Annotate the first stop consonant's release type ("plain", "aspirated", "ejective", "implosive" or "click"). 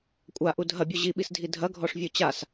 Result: ejective